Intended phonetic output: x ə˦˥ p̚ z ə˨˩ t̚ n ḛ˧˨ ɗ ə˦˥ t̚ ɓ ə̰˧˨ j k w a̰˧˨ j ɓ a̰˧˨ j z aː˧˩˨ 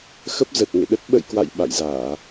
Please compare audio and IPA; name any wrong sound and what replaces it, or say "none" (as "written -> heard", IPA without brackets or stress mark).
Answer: n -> ŋ